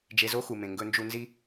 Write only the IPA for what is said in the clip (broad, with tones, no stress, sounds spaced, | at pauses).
d͡ʒ e˧ z o˥ x u˩ m ẽ˩ ŋ ɡ ɵ˧ n d͡ʒ u˧ n z i˥